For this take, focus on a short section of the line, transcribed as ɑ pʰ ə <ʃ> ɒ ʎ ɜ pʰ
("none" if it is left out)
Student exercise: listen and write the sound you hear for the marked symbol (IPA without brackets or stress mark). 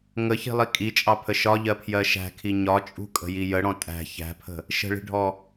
ʃ